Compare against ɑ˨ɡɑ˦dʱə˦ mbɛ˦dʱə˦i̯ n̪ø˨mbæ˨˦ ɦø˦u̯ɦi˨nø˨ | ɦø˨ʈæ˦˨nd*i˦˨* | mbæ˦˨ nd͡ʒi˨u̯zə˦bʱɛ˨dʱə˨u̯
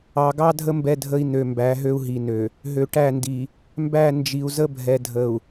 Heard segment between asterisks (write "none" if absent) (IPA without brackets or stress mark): i˨